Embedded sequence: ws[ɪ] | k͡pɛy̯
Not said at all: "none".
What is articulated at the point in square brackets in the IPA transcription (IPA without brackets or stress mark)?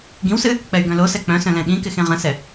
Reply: ɨ